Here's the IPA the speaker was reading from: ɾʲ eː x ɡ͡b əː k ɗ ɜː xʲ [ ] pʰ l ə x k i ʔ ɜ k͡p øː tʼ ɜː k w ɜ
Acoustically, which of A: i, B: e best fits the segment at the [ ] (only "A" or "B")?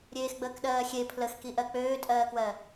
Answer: B